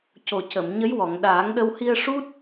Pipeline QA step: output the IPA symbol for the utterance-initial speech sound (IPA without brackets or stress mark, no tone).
c